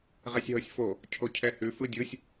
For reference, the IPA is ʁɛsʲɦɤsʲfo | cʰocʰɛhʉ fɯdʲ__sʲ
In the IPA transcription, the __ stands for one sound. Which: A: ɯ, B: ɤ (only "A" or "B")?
A